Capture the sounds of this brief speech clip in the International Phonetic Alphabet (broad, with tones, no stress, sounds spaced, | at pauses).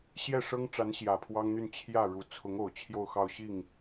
ɕ j ɛ˥˩ ʂ ɤ˥ ŋ ʈ͡ʂ a˧˥ n ɕ j ä˨˩ pʰ w ɑ˥ ŋ n̪ y˥˧ n t͡ɕʰ j ä˥˩ ɻ u˨˩ t͡sʰ ʊ˧˥ ŋ o˨˩ ʊ̯ t͡ɕʰ j o˥˧ ʊ̯ x ɑ˥˧ ʊ̯ ɕ i˥˩ ŋ